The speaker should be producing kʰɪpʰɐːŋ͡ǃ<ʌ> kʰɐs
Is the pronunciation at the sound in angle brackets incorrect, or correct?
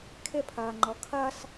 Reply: incorrect